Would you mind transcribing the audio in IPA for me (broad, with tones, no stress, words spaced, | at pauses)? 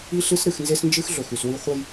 i˦ɬɨ˦s ɾɨ˨xnze˦snd͡ʒɨ˦x ɮɵ˨xʉ˨swi˦ χʷɐ˦j